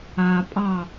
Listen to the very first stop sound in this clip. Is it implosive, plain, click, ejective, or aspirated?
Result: ejective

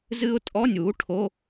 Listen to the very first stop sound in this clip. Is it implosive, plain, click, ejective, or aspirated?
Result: ejective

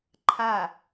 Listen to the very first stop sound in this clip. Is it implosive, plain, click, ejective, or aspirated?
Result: click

